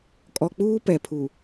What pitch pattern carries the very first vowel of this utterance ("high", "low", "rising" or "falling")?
low